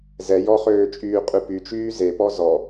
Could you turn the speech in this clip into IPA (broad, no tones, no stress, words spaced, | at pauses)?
zɛ jɔχøːt͡ʃʼyː qʼʉpy t͡ʃyːze pɔzɔ